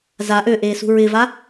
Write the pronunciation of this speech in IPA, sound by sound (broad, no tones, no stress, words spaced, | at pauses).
za ʔøʔeːsṳ ɹɪva